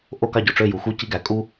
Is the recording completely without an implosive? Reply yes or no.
yes